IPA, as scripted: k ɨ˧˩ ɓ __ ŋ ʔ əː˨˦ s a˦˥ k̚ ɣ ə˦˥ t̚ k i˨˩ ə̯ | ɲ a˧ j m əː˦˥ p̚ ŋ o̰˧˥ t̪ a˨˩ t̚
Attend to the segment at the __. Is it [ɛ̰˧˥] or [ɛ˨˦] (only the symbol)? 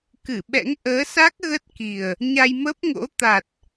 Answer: ɛ̰˧˥